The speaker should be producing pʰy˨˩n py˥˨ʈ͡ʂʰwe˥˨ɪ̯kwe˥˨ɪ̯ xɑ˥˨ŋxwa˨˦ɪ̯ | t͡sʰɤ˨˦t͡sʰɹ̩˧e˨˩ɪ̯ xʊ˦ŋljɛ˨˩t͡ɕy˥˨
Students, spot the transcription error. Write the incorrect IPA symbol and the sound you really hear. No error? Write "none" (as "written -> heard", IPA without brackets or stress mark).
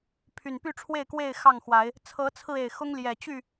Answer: none